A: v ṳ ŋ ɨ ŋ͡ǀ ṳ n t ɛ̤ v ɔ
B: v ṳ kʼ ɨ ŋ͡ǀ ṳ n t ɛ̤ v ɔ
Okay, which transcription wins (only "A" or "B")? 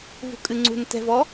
B